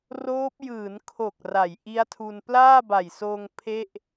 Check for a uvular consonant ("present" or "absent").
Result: absent